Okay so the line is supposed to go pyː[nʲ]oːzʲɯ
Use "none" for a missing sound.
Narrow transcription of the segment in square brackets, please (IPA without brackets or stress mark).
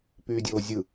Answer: dʲ